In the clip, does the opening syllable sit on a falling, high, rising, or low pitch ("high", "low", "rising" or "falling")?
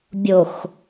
low